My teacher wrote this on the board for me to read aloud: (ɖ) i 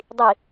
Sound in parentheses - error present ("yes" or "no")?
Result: yes